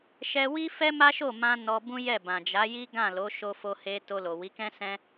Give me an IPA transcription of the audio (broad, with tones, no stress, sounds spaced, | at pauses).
ʃ ɛ˦ w i˦ f ɛ˦ m a˦ ʃ o˦˨ m ã˧ n ɔ˧ b ũ˦ j ɛ˦˨ b ã˨ d͡ʒ a˨˦ j i˦ ɡ ã˦˨ l o˨˦ ʃ o˧ f o˧ h e˧ t o˧ l o˨ w i˨˦ k ɛ̃˦ s ɛ̃˦